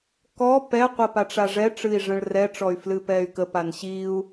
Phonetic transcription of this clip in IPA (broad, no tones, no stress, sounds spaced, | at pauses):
k ɔ p ɛ qʷ ə p a ʈ͡ʂ a ʐ ɛ ʈ͡ʂ ɨ i̯ ʐ ə̃ ɭ r ɛ ʈ͡ʂ ɔ y̯ f l ɨ p ɛ y̯ k ə p a n ɕ i u̯